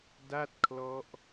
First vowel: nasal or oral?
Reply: oral